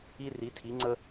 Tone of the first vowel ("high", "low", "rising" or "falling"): high